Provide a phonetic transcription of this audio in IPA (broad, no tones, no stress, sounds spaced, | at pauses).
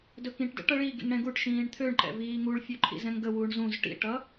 d ɵ k ĩ ʈ d ə̰ ʈ ʌ ɭ i ɡ ḭ ŋ ɽ ɛ̃ ɡ u ʈ ʃ ĩː ɳ t̪ʰ ø ɳ ǃ ɛ̰ v iː ŋ u ɭ fʲ ø ǃʰ ḭ z ɛ̃ ŋ ɡ ə w u ɳ z ũ z ʈ ḭ ʈ ʌ